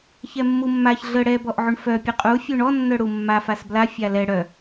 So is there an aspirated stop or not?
no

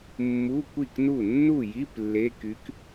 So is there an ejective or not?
no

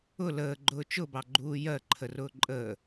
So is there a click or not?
yes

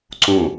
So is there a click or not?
yes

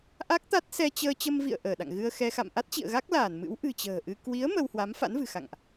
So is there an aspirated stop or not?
no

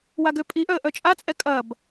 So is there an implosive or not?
no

